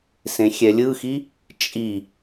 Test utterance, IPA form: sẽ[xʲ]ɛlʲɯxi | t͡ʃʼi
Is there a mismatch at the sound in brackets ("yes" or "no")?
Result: no